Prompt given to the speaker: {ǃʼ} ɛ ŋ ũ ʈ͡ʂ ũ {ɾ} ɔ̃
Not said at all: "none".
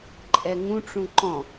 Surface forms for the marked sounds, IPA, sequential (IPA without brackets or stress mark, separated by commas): ǃʼ, ǃ